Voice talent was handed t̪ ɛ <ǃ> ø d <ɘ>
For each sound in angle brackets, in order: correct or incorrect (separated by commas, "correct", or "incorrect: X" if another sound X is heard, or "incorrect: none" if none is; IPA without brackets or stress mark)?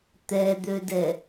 incorrect: d̪, incorrect: ɛ